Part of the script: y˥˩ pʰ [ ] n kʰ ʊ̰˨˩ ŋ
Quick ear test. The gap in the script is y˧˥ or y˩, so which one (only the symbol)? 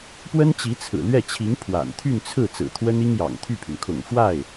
y˩